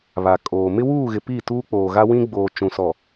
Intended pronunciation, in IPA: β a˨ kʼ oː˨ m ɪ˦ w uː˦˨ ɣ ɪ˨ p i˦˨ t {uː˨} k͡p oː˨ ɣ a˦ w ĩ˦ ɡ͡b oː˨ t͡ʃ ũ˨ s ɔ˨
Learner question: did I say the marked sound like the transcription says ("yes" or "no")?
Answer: no